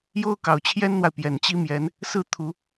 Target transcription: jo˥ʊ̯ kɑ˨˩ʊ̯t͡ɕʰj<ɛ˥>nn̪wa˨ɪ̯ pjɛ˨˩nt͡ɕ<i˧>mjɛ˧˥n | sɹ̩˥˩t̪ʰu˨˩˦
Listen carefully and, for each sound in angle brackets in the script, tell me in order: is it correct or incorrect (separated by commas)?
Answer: correct, incorrect